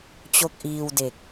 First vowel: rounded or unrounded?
rounded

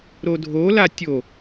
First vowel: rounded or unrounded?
rounded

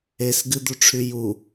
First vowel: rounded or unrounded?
unrounded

